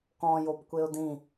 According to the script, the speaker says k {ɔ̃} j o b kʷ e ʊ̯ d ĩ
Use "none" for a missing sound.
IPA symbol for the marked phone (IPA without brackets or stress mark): ɔ̃